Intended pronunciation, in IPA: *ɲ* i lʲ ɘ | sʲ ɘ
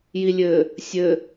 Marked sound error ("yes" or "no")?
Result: yes